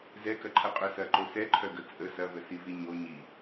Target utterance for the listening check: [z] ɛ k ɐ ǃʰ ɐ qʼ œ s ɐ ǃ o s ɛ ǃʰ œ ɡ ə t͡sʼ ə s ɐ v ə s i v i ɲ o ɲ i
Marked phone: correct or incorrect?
correct